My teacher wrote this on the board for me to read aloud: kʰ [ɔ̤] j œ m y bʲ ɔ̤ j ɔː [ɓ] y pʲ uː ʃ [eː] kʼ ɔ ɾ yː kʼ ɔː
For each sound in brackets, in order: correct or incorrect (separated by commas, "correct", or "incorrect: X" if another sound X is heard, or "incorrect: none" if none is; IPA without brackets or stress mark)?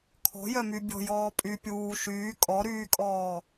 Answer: correct, incorrect: pʼ, incorrect: yː